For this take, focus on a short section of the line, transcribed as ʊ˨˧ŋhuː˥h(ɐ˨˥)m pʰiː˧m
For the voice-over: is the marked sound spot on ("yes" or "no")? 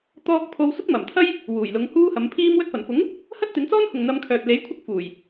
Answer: yes